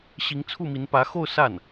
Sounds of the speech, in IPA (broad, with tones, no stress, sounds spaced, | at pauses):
ɕ i˧˥ ŋ t͡sʰ u˥˩ m i˧˥ n p ä˧˥ x o˥˧ ʊ̯ s a˥˩ n